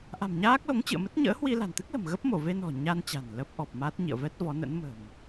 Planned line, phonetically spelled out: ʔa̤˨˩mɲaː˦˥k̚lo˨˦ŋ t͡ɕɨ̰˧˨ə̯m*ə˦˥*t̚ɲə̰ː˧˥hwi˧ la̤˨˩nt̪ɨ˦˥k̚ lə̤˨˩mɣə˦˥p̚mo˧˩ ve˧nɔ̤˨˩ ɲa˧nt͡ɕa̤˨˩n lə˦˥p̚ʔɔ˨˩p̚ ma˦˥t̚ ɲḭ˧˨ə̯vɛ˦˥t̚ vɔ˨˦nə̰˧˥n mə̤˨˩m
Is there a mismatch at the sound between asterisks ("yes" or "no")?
no